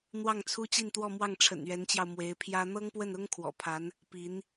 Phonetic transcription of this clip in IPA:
n̪ w ɑ˥˩ ŋ t͡sʰ u˥ t͡ɕ i˥˧ n t̪ w ɔ˥˧ m w ɑ˥˩ ŋ ʈ͡ʂʰ ə̰˨˩ n ɥ ɛ˧˥ n t͡ɕ j ɑ˧ ʊ̯ m w e˧˥ ɪ̯ pʰ j ä˥ n̪ ɤ˥ ŋ p w ə˥˩ n ʊ˥ ŋ kʰ w ɔ̰˨˩ pʰ a˧˥ n | p i˧˥ n

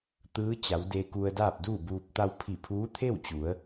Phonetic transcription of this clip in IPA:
t̪ ɯː˧˥ t͡ɕ a˩˧ w d e˧ k u˧ ə̯ d aː˥˨ p̚ d uː˥˨ b uː˧ p̚ t̪ a˧ w pʰ i˧˩ pʰ uː˧˥ t̪ʰ e˥˨ w t͡ɕ u˩˧ ə̯

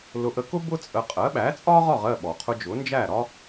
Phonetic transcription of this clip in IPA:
l ʊ˧ ʔ ə˧ k ʊ˥ b ʊ˥ t͡sʼ ə˧ qʼ ɜ˩˥ ɓ æ˩˥ t͡sʼ ɒ˥ ʁ ɒ˥˩ ʁ ɜ˥˩ ɓ ɔ˩ qʰ ʊ˧ d͡ʒ ʊ˩˥ n d͡ʒ æ˥˩ ɾ ɒ˥

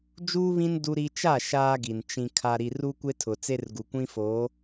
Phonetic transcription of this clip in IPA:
d͡ʒ uː˦ β ĩ˦ n d u˦ ɾ i˦ t͡ʃ a˦˨ ʃ aː˦ ɡ i˨ n t͡ʃ ĩ˨ kʰ a˨ ɾ i˨ r u˦ kʷ e˦ tʰ ʊ˨ t͡s e˦ r ɡ u˨ kʷ ĩ˦ f oː˨˦

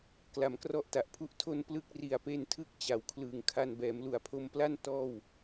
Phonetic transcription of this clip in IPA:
k l a˩˦ m k r ɔ˥˩ ʔ t a˨˩ ʔ pʰ u˥˩ ʔ tʰ o˧ n p l ɯ˥˩ k̚ r i˨˩ a̯ p e˧ n tʰ ɯ˦˥ k̚ t͡ɕ a˨˩ w kʰ l ɯː˨˩ ŋ kʰ a˧ n b ɛː˩˦ m l u˨˩ a̯ pʰ o˧ m p l a˥˩ n t ɔː˥˩ w

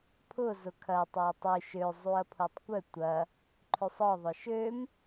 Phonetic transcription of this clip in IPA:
pʰ ʊ z ʊ kʰ ɐ tˤ a tˤ y ʃ ø zˤ u ɐ̯ pʰ u tˤ kʷ œ tʷ ɐ | ǃʰ ø sˤ ɔ ðˤ ʊ ʃ ø m

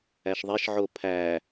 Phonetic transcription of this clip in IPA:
æ ʃ ðˤ e ʃ ʕ o pʰ æ

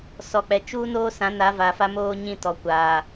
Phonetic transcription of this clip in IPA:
s ɔ˨ k͡p ɛ˨ t͡ʃ uː˦ n oː˦ s ã˨˦ n a˨˦ v a˨ f a˦ m oː˦ ɲ ĩ˦˨ t ɔ˨ kʷ a˨

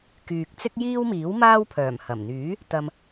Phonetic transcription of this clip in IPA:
k yː˨ k̚ t͡s ɪ˥ k̚ j iː˥ w m iː˨˥ w m aː˥ w pʰ œː˨˩ m h ɐ˨˩ m n̪ yː˨˥ | t̪ ɐ˨ m

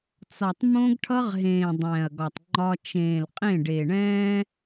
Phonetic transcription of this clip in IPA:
t͡s ɒ˨ tˤ m õ˦ ɡ ʈʰ ʌ˦ ʁ ɦ ẽː˨ dˤ ɛ̃ː˨ ɐ̯ ɡ ɒ˨ tˤ ŋ͡ǃ ɒ˦ t͡ʃ ẽː˨ l qʼ ẽ˦˨ ɖ e˨ ɳ ɛ̃ː˦

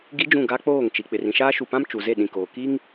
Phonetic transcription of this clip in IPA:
ɡ i˦ d͡ʒ ũ˦˨ ɡ a˦ k͡p oː˦˨ ŋ t͡ʃ i˨ k͡p ɪ˨ r ĩ˨ ʃ aː˦ ʃ u˨ p ã˦ m t͡ʃ u˨ z e˦˨ ɗ ĩ˨ k oː˨ k i˦ ŋ

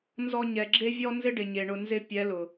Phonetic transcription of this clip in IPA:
n z ɔ˧ ɲ ɛ˨ ɡ͡ǁ e˦ vʲ ɔ˦ n z ɪ˦ ɖ ɪ˨ ɲ e˨ ɳ ʊ˧ n z ɪ˧ pʲ ɛ˨˦ l ʊ˨

